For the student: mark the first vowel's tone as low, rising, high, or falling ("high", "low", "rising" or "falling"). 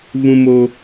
high